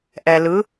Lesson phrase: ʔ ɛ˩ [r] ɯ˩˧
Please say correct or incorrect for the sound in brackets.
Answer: incorrect: l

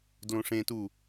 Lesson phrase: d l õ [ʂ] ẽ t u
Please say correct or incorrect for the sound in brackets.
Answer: correct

